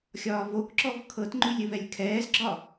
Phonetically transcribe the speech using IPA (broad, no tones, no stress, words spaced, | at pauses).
xʲɒːvokǁɔv kʰɤtŋ͡ǃʉlʲ ɘvɛlʲkʰɛːzɡ͡ǁɒ